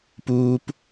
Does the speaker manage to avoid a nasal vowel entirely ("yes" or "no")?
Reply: yes